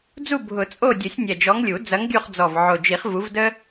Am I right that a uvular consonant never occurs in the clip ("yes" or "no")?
no